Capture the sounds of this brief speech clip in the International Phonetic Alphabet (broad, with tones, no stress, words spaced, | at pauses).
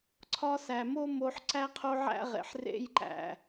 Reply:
ǀʰɒ˧sæ˨mo˦mo˧ħ ǀæ˦qʰo˦ ʕæ̰˦ʁḛ˨ħ rḛ˧jǃæ̰˨